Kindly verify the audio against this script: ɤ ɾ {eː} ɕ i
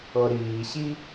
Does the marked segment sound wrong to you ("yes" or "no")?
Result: yes